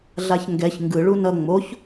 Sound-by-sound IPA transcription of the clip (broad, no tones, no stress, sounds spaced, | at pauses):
ɮ a ç ŋ ɡ ɛ ç ŋ ɡ ɯ ɭ u n ʌ ŋ͡m o ç